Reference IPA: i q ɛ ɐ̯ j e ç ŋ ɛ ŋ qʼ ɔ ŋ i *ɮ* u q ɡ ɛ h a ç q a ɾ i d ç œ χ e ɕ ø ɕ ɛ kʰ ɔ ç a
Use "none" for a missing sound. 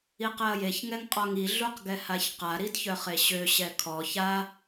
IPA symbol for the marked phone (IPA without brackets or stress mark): ɮ